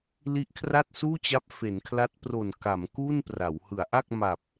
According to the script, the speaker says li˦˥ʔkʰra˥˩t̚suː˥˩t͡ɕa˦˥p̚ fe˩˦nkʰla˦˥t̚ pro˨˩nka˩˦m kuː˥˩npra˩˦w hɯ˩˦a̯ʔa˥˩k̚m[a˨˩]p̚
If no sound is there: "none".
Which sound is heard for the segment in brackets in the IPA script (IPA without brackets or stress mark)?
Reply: a˨˩